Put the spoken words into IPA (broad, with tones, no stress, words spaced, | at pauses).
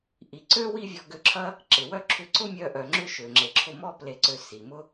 ʔi˩ ǀø˥ wi˥vʲɔ˧ɡø˧ǁʰɐ˥ | ǁɪ˩wœ˥ ǁʰʏ˧ǀʊ˥mʲœ˧ʔœ˩ ŋ͡ǁʏ˥ʃø˩ ŋ͡ǁe˩ǁʰʊ˧mɔ˥ ple˧ǀø˧si˩mʊ˥